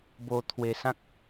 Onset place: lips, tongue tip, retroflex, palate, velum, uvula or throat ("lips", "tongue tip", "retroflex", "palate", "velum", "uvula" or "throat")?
lips